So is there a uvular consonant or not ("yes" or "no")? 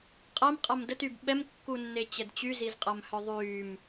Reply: yes